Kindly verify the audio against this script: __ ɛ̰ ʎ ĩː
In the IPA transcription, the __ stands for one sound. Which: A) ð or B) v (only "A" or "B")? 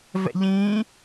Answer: B